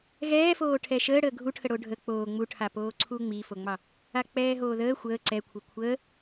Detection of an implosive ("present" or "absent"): absent